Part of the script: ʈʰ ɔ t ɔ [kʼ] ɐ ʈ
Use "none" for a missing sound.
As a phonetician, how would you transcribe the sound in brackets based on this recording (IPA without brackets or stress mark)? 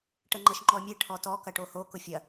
k